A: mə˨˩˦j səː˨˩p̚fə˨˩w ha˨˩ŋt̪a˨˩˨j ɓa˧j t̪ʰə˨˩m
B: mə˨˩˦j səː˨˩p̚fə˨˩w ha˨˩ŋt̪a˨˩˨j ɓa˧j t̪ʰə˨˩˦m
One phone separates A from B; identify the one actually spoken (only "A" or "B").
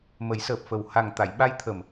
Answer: A